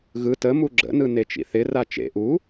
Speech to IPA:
ɣ ɯ t ə m u ɡ͡ǁ ə̰ n ɯ n e t͡ʃ ḭ θ ɪ r a t͡ʃ ḛ ʔ u

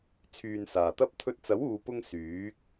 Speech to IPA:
t͡sʰ yː˨ n s aː˨˩ t̪ ɐ˥ p̚ t̪ʰ ɵ˧ t̚ t͡s ɐ˨˥ w uː˨ p ʊ˧ ŋ s yː˨˥ k̚

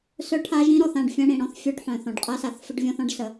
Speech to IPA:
s œ˦ ʈʰ a˦ ʒ ĩ˦ ɾ ɔ˨ θ ã˦˨ ɖ fʲ ã˦ ɽ ĩ˨ ɽ ɔ̃˦ θ fʲ œ˦ ɖ ħ œ̃˨ θ ɔ̃˨ ɖ qʼ a˦ s a˨ θ f ə˦ ɖ vʲ ɔ̃˦ θ ɔ̃˦ ɖ s ə˨

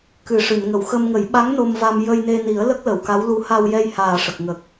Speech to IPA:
k ɨ˨˩ ʂ ɨ˨˩˨ n ŋ ə˨˩˨ w x ə˧ m ŋ ə˨˩˦ j ɓ a˧˥ ŋ n o˧ m v a˧ m j ə˧ j n e˧ n i˨˩˦ ə̯ l ə˦˥ k̚ l ə˨˩˨ w k a˧˥ w l u˧˥ h a˧ w j ɛ˧ j h aː˨˩ ʂ ə˨˩ k̚ ŋ ə˨˩ k̚

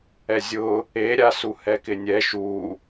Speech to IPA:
ɛ zʲ ʊ | e ɾʲ a s u h ɛ k ɪ nʲ ɛ ʃ u

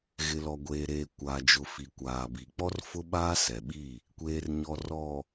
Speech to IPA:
ɣ ɪ˨ l ɔ˨ ɡʷ eː˨ ɾ eː˨ kʷ aː˨ d͡ʒ ʊ˨ f i˨ kʷ aː˨ b i˨ k͡p ɔ˦ r f ʊ˦ ɓ aː˦ s ɛ˨ ɓ i˦˨ | kʷ eː˨ r ɲ ɔ˨ r ɔ˨

